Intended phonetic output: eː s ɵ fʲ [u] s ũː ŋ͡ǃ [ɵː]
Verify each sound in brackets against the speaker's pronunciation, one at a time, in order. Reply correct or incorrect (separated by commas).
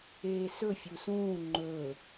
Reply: correct, correct